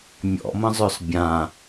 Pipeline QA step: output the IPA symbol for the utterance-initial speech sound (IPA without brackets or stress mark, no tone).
mʲ